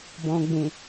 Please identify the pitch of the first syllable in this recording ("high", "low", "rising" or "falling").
low